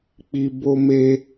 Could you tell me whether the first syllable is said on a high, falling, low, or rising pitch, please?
low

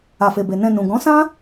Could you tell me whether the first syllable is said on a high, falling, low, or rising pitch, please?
low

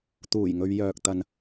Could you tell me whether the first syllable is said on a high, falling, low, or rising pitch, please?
low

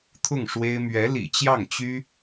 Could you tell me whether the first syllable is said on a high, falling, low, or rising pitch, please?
falling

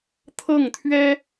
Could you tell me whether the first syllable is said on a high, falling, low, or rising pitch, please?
falling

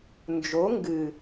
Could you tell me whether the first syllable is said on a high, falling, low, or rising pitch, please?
rising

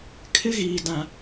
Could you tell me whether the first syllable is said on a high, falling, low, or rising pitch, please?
high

